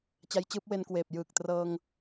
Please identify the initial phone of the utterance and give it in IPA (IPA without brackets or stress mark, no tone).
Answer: t͡ɕ